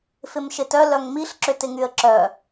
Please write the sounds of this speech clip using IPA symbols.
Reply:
f ɪ m ʃ ɪ t œ l œ ŋ m i ɬ ǁ ʏ t ɪ ŋ y ə̯ ǁ œ

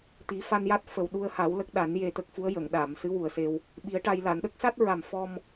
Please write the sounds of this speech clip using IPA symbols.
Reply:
t̪ i˨˩˦ f a˧ n j a˦˥ t̚ f ə˨˩ w ɗ u˧ ə̯ h a˨˩˦ w l ə˦˥ k̚ ɗ a˨˩˦ n j e˧ t̪ ə˦˥ k̚ f u˧˥ ə̯ j ə˨˩˨ ŋ ɗ aː˨˩˨ m s ɨ˧˥ w u˨˩ ə̯ s e˧ w | ɓ i˨˩˦ ə̯ ʈ a˧ j l a˨˩˨ n ɗ ə˦˥ k̚ s a˦˥ t̚ ɹ a˨˩ m f ɔ˧ m

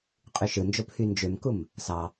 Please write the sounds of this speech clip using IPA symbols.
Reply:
qʼ y ʃ ɯ n d͡ʒ o pʰ y n d͡ʒ ø m k u m | s ɑ

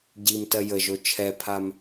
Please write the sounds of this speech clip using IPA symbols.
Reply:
ɟ i m t ɜ j ə ʒ o t͡ʃʰ ɛ pʰ a m

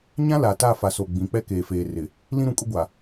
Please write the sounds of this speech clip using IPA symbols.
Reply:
ɲ ã˦ l a˨ t a˦˨ f a˨ s o˨ ɡ͡b ĩ˨˦ k͡p ɛ˦ k eː˨ f eː˨ r ɪ˨ | l ĩ˦ ɾ ũ˨ kʼ ʊ˦ ɡʷ a˨

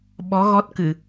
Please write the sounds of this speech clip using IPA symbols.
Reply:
ɓ ɔ˨˦ ɣ ɔ˦˥ t̚ k ɨ˧˩˨

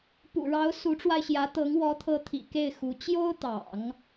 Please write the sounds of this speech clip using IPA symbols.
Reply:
p ṵ˨˩ ɻ ɑ˧˥ ʊ̯ s u˧˥ ʈ͡ʂ w a˧ ɪ̯ ɕ j ä˧˥ t̪ ɤ˧˥ ŋ w ɔ˧˥ t̪ʰ ɤ˧˥ t̪ʰ ḭ˨˩ k e˥˩ ɪ̯ x u˧˥ t͡ɕ j o˥ ʊ̯ t̪ ɑ̰˨˩˦ ŋ

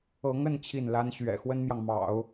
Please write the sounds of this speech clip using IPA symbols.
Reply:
ɤ˧˥ ŋ ə˥˧ n t͡ɕʰ i˥˩ n l a˥ n ɕ ɥ ɛ̰˨˩ x w ə˥ n m j ɑ˨ ŋ m ɑ̰˨˩˦ ʊ̯

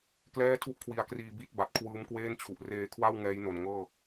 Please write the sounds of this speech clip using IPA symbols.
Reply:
k l ɛː˥˩ tʰ u˥˩ ʔ kʰ w i˧ a̯ k r iː˧ b i˦˥ t̚ b a˨˩ t̚ kʰ w ɯː˦˥ m k w eː˥˩ n t͡ɕʰ u˨˩ ʔ r eː˧ kʰ w a˥˩ w ŋ ɛː˦˥ j n o˨˩ n ŋ ɤː˥˩

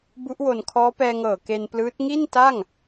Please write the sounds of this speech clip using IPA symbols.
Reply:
b u˦˥ ʔ w o˨˩ n kʰ ɔː˦˥ p ɛː˧ ŋ ɤː˨˩ k e˧ n p l ɯː˦˥ t̚ ŋ i˥˩ n t a˥˩ ŋ

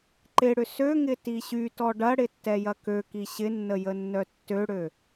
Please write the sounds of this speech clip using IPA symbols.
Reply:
ǃ ɪ ɽ ʏ s ø ŋ ɪ t i ɕ y t ɔ ɖ ɐ ɽ ɪ tː ɛ j ɐ k ø k i ɕ ɪ nː ə j ə nː œ tː ø ɽ ø

